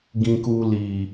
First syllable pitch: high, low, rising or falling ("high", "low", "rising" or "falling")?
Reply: low